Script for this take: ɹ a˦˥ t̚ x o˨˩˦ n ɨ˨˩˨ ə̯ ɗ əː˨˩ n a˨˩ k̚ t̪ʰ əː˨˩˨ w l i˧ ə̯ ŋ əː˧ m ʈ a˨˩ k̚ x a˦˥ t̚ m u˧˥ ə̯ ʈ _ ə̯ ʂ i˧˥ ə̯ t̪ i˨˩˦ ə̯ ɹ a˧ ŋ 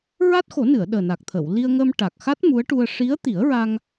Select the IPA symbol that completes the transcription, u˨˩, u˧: u˧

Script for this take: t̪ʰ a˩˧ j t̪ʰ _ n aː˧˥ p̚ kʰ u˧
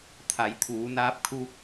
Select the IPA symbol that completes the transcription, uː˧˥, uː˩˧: uː˩˧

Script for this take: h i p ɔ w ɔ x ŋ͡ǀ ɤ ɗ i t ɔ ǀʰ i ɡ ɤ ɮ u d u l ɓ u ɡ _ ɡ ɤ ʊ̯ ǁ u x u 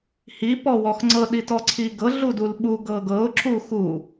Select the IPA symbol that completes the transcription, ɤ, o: ɤ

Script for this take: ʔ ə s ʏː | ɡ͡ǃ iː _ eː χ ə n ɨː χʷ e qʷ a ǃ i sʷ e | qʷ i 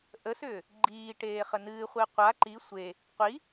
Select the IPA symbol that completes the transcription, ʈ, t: ʈ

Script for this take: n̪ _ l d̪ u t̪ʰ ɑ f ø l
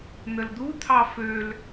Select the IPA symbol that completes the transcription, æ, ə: ə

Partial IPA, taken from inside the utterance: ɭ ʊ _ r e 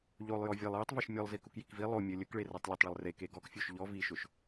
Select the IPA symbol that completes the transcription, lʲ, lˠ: lˠ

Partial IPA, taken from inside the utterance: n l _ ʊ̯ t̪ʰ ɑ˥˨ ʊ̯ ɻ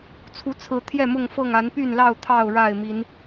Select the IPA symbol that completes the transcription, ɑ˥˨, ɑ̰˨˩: ɑ˥˨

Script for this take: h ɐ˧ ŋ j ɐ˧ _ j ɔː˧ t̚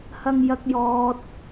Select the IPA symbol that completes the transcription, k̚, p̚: k̚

